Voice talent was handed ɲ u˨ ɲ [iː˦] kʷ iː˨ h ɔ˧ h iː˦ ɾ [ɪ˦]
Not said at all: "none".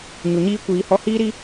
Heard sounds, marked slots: iː˦, i˦

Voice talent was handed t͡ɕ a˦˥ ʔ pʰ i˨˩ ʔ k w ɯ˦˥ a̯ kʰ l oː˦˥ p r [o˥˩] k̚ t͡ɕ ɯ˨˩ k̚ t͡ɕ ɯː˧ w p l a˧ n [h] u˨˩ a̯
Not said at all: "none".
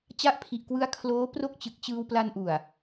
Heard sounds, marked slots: o˥˩, ʔ

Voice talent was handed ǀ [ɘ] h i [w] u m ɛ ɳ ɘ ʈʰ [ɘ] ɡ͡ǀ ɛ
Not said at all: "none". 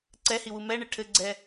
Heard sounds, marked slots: ɛ, w, ɘ

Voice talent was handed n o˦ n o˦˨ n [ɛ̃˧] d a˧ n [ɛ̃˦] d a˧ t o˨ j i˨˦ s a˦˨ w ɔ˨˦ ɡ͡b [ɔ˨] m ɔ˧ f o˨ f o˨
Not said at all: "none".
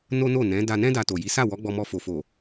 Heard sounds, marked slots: ɛ̃˨˦, ɛ̃˦, ɔ˧

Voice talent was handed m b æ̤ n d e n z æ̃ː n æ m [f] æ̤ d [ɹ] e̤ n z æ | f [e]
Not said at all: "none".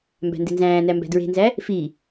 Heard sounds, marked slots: b, ɹ, i

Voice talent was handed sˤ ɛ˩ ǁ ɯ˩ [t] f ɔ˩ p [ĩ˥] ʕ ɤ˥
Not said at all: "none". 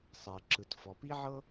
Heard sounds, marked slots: t, i˥

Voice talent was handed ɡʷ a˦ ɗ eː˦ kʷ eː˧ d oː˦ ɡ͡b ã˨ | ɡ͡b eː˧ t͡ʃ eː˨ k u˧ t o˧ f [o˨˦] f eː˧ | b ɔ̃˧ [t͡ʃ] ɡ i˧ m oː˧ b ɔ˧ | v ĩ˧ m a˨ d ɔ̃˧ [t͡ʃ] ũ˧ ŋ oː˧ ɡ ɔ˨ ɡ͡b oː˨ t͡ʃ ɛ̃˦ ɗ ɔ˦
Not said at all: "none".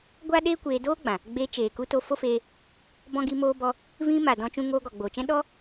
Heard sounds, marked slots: o˦, none, t͡ʃ

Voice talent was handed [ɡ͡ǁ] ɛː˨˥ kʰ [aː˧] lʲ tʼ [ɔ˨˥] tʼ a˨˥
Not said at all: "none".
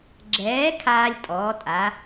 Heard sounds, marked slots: ɡ͡ǁ, aː˧, ɔː˨˥

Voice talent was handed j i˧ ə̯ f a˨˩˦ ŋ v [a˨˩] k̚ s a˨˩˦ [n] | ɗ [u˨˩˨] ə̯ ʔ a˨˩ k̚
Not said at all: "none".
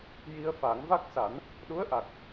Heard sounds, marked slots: a˦˥, n, u˧˥

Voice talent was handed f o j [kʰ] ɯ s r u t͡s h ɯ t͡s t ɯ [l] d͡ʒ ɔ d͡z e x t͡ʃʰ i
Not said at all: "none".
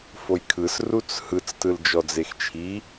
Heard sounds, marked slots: kʰ, l

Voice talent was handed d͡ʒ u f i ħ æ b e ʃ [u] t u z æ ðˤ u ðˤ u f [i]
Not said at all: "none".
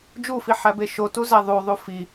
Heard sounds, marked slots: o, i

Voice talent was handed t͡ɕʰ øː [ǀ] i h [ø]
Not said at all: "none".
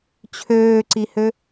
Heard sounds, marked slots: ǀ, ø

